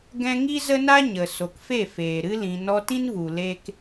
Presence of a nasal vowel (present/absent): present